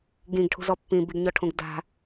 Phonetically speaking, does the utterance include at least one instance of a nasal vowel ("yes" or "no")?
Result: yes